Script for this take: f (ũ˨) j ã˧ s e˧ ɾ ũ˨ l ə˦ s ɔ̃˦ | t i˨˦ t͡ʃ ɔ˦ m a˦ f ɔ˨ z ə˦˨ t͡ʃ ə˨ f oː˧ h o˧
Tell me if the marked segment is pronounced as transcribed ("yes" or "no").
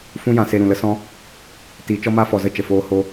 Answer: no